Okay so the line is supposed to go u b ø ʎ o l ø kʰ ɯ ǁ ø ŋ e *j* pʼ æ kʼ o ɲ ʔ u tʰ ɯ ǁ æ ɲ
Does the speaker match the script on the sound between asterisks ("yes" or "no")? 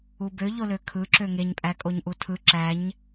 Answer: no